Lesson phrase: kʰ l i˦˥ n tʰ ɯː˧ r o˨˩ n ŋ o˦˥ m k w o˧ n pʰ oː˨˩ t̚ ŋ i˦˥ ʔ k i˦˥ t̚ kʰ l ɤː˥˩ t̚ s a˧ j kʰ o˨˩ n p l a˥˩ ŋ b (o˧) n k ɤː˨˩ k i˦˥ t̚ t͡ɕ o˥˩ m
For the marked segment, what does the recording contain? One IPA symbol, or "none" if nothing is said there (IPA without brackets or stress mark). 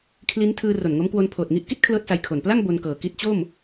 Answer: o˧